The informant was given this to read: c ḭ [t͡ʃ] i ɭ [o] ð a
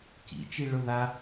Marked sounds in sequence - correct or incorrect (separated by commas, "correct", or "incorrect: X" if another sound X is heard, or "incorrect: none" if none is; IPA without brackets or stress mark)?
correct, incorrect: ɵ